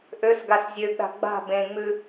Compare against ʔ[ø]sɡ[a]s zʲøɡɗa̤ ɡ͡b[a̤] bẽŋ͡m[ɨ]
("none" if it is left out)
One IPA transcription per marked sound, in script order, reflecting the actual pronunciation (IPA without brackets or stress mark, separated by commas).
ø, a, a̤, ʉ